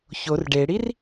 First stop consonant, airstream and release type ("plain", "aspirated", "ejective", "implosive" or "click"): plain